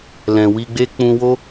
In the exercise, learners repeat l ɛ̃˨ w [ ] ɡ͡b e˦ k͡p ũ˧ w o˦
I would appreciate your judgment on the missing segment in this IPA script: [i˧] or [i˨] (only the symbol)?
i˧